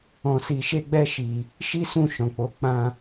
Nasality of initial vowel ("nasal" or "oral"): nasal